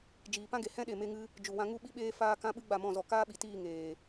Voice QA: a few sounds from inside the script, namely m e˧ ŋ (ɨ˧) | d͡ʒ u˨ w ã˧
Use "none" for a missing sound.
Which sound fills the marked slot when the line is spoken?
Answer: ɨ˧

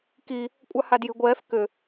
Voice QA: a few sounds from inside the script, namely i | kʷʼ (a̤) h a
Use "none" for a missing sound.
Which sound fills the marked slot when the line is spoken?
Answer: a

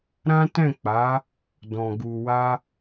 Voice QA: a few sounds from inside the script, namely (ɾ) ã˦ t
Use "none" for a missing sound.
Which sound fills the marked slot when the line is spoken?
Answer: ɾ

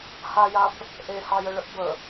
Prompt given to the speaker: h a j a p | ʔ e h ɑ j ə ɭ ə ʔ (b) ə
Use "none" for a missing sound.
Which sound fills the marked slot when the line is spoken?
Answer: b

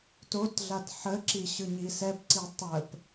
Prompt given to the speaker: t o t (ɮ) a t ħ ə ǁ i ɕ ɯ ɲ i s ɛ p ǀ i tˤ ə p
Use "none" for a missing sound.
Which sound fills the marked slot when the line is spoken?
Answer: ɮ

